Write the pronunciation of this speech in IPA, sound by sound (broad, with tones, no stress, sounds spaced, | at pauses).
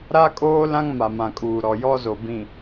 ɾ a˦ kʼ oː˦ l ã˦ ŋ m a˨ m ã˨ kʼ uː˨ ɾ ɔ˨ j ɔ˦ z o˨ b ĩ˨